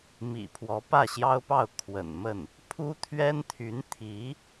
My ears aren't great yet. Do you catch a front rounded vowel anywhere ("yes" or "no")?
yes